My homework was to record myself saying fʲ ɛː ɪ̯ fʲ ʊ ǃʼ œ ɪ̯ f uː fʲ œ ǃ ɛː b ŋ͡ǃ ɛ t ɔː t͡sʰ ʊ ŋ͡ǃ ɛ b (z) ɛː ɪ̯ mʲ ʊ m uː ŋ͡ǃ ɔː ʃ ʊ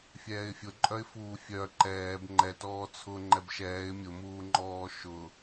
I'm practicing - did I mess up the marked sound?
yes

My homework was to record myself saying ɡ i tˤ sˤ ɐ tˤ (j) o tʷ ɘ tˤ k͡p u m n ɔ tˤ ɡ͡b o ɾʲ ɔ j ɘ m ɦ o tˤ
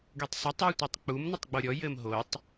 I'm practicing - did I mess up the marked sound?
no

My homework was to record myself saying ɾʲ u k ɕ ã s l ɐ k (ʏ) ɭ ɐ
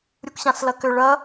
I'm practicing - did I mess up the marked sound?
no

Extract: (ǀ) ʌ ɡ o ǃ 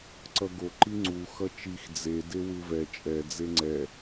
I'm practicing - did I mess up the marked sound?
no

